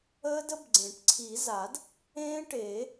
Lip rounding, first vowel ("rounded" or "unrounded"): unrounded